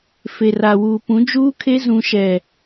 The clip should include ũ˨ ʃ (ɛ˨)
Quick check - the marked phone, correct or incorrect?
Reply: correct